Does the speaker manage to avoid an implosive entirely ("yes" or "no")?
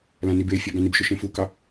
yes